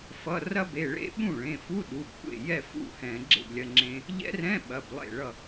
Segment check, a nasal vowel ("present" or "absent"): present